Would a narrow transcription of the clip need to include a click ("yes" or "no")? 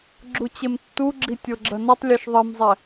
yes